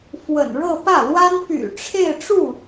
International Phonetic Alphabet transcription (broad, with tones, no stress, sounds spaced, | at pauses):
f w ə̰˨˩ n ɻ ɤ˥˧ p ä˥˩ l w a˥ n p y̰˨˩ ʈ͡ʂʰ e˥˧ ɪ̯ ʈ͡ʂ u˥˩